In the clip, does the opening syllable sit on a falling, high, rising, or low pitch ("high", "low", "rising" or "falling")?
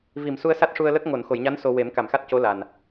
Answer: low